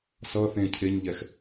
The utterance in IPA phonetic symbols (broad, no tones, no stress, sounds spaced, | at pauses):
s ʌ θ ẽ cʰ e ɲ ʎ ɛ x